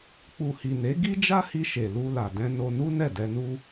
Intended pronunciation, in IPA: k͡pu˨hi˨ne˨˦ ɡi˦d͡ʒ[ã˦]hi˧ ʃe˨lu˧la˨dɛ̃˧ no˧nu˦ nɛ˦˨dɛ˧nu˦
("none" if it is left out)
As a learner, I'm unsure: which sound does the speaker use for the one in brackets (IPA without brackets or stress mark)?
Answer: a˦